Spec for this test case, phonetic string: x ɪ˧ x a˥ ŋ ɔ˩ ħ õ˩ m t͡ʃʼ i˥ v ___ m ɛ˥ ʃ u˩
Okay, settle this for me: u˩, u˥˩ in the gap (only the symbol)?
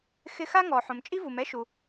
u˩